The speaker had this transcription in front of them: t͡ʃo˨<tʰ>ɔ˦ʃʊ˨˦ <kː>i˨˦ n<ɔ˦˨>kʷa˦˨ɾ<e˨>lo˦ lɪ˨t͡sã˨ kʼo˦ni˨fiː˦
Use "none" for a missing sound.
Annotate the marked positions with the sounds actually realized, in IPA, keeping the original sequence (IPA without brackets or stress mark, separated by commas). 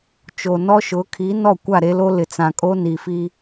n, kʰ, ɔ˦˨, e˦